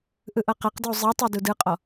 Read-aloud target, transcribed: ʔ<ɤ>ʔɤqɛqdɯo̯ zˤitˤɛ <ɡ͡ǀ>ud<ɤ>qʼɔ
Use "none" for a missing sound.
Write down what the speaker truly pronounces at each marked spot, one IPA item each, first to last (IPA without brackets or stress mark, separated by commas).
ɯ, d, ɯ